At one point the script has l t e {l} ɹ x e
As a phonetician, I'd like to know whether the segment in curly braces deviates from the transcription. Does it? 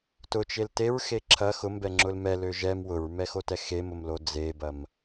yes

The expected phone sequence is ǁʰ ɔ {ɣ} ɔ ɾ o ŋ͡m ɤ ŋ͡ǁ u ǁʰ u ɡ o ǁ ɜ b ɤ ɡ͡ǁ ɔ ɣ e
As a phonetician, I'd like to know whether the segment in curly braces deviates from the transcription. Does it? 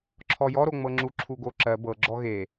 yes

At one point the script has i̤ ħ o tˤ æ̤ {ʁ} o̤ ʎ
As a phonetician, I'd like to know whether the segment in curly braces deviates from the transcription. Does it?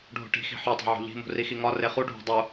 yes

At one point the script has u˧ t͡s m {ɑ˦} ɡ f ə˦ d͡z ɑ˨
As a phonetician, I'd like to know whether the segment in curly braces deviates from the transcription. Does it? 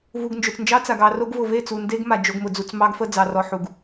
no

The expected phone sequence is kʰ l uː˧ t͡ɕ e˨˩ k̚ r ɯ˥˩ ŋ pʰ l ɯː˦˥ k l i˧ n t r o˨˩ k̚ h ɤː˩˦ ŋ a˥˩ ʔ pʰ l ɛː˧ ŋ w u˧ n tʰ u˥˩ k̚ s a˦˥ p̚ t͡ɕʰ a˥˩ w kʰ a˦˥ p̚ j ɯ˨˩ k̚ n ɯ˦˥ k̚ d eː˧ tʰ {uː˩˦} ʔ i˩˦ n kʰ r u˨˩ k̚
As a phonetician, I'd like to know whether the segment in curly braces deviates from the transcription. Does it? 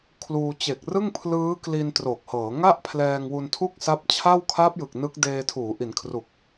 no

